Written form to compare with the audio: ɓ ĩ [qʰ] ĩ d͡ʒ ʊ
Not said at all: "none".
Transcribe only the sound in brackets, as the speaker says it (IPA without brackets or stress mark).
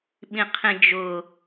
qʰ